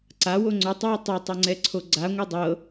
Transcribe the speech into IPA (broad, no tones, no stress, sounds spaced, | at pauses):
ǀ a w o ŋ͡ǀ o tˤ w i tˤ i tˤ o ŋ͡ǀ ɛ ǀʰ o ɡ͡ǀ a ŋʷ ɛ dˤ ɤ